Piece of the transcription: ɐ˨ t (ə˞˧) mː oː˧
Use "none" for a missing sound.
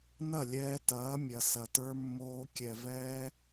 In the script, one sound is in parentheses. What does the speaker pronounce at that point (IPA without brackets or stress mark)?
ə˞˧